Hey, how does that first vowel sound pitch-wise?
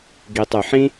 low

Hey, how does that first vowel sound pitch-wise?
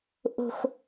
high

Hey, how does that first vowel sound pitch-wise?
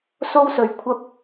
high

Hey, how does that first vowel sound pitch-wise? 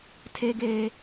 high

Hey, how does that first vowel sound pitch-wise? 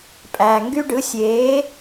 low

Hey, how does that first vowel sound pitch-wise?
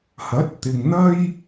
rising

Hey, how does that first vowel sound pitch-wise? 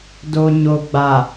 low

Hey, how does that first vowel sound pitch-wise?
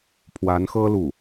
rising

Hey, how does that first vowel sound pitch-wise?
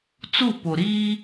falling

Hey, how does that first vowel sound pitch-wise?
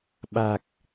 low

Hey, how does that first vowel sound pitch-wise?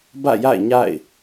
falling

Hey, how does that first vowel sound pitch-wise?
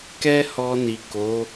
high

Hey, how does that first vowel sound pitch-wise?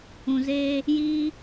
low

